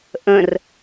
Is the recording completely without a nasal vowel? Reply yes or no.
no